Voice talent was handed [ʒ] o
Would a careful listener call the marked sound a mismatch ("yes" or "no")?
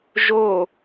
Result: no